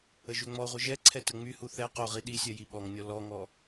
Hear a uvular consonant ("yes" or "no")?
yes